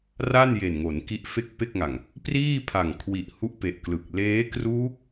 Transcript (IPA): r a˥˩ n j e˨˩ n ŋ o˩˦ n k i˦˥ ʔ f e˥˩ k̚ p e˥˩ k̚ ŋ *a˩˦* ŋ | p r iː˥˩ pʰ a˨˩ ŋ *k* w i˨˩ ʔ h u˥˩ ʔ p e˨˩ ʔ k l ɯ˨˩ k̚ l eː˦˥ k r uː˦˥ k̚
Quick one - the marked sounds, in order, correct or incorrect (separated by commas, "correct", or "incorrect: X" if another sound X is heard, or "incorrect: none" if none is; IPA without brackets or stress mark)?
incorrect: a˨˩, incorrect: kʰ